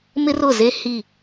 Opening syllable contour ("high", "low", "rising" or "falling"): high